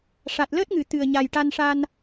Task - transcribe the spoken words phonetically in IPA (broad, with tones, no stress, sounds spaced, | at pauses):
ʂ a˨˩ t̚ l əː˦˥ t̚ ŋ ɨ˨˩˨ t̪ ɨ˨˩ ə̯ ɲ a˨˩ j ʈ a˧ n ʂ a˧ n